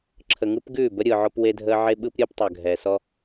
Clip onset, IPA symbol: ǁʰ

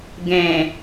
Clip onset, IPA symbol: ɡ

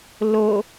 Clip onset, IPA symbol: l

